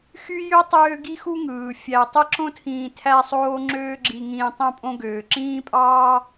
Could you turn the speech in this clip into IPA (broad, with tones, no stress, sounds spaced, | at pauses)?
x y˥ j ø˥ tˤ øː˦ ɡ i˥ x u˥ ŋ ɯː˩ fʲ æ˨ tˤ e˥ ǁ õ˥ tʰ ĩː˨ tʰ æ˦ sˤ oː˦ ŋ͡ǁ øː˦ ɡ͡ǁ i˨ ŋ ĩː˨ tˤ õ˥ pʼ õ˥ ɡ øː˩ ǁ ĩː˥ pʼ ɑː˥